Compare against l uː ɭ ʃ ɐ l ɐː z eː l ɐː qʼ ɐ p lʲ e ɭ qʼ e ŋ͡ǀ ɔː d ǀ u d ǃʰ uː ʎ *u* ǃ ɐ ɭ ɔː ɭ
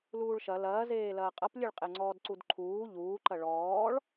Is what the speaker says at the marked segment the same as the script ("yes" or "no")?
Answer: no